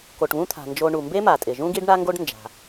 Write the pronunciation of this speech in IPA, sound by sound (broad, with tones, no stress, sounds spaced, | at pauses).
k o˩ ʈ β ũ˧ t̪ʰ a̤˩ n d͡ʒ o˧ ɳ u˩ m b e˥ m a˩ tʼ ɪ˩ ʒ ũ˥ ɡ i˥ ɖ ɳ a˥ ŋ ɡ o˥ ɖ n d͡ʒ a̤˩